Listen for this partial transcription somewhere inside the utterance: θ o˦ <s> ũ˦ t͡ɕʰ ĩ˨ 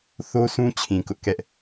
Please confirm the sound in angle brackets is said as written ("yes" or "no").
yes